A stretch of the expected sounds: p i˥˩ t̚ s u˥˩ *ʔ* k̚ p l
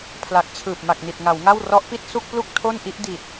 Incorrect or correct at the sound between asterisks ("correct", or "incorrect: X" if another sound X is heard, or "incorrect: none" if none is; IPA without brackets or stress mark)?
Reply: incorrect: none